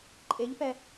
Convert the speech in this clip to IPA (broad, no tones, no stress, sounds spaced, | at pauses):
ǃʼ e ʎ p ɛ